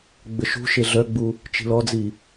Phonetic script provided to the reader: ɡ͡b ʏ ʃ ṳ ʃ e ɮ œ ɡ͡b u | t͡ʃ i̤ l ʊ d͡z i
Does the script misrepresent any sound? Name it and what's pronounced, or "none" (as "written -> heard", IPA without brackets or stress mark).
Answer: ʊ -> ɔ